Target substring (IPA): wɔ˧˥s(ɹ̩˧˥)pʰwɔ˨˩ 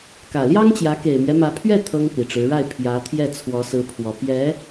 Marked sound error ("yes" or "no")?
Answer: no